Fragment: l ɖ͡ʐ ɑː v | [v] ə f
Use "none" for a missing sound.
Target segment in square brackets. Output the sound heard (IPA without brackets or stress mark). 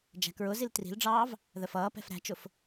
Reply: ð